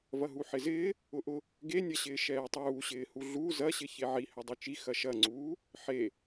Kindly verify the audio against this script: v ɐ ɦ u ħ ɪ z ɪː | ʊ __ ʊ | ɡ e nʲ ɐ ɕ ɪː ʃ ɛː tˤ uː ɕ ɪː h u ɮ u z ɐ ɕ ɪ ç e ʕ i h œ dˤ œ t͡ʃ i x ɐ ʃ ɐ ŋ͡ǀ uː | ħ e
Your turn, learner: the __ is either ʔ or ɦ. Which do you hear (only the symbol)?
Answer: ʔ